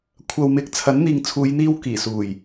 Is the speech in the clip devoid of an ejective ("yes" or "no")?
yes